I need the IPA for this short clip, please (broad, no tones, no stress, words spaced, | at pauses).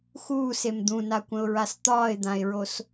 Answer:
xuːsem d̪ũnakʷə̃ʊ̯ɹas t̪ɒːɪ̯d̪ãɪ̯ɹos